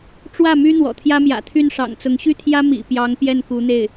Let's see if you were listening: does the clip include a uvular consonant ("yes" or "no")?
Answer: no